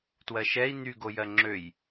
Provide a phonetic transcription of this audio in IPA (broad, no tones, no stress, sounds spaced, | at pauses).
t w ɜ ʃ ɛ i̯ n̪ y ɡ o j ɜ ŋ͡ǁ ø j